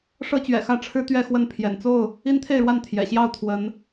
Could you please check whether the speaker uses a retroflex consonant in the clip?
yes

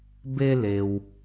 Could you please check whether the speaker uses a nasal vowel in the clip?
no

